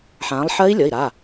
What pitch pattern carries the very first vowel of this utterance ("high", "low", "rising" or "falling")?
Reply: rising